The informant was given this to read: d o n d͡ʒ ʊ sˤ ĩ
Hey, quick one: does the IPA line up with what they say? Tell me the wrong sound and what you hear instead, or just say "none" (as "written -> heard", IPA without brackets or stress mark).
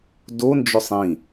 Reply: none